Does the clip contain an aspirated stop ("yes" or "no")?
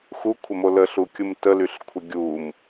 yes